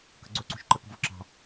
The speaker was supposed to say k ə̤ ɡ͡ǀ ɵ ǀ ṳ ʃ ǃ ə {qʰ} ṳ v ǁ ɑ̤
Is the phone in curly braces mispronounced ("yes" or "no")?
yes